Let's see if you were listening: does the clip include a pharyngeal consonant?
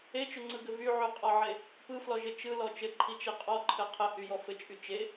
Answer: yes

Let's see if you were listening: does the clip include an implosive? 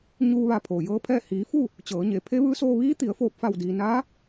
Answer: no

